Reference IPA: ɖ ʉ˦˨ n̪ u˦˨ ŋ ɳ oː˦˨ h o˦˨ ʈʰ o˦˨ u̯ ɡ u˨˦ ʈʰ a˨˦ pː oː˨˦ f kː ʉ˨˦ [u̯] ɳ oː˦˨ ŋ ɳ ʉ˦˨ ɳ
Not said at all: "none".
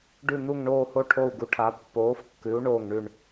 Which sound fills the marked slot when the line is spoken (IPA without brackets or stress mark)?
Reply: u̯